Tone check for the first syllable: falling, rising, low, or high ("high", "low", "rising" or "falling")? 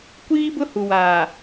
high